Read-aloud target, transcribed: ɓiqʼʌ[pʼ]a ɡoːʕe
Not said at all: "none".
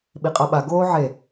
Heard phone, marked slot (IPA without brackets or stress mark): ɓ